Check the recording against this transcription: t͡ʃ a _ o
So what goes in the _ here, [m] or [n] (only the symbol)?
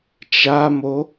m